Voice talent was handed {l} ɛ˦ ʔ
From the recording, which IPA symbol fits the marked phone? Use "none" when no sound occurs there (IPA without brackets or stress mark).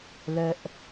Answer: l